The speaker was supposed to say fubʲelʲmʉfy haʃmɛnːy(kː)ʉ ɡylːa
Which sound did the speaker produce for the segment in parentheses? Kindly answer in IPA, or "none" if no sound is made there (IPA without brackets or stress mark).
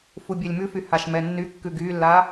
kː